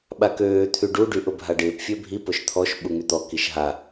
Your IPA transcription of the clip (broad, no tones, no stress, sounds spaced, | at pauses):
ɓ a k øː t̪ʰ y ɖ u ɖ y ʔ ʊ bʱ a ɖ ɪː p fʲ ø bʱ i p ʊ ʃ t̪ʰ ɔ ʃ ɓ u ŋ y t̪ ɔ k i ʃ ɦ a